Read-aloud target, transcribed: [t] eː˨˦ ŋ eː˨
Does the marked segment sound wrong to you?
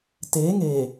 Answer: no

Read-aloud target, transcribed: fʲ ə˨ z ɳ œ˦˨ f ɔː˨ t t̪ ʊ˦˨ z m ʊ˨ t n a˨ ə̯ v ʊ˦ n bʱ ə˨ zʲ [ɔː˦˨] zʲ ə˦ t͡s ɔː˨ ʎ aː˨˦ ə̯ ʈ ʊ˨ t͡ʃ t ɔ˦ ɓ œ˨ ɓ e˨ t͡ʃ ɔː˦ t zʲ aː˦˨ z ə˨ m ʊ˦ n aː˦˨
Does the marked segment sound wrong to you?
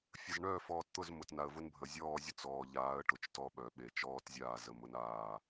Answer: no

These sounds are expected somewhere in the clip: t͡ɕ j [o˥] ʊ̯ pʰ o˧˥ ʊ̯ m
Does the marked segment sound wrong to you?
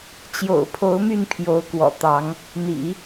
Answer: yes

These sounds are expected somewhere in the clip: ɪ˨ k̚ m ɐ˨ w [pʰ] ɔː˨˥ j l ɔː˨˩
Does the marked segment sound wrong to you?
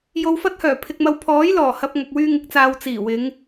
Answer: no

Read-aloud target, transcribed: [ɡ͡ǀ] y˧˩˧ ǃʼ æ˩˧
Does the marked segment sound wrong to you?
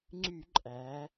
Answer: yes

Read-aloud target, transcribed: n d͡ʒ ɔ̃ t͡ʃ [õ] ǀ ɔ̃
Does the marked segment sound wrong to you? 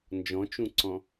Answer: yes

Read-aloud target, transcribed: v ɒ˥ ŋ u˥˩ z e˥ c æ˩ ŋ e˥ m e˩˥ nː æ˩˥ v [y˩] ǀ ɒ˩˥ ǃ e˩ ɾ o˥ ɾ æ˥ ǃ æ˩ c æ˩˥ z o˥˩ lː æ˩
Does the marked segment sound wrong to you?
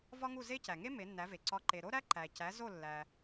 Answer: yes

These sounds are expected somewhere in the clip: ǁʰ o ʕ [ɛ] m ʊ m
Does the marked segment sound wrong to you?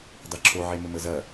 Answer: yes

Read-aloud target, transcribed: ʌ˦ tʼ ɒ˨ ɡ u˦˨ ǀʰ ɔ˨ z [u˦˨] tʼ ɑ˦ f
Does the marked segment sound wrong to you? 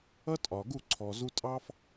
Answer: yes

